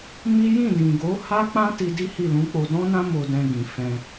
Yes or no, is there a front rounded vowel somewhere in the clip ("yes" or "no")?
no